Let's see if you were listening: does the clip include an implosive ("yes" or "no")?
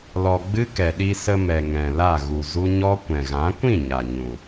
yes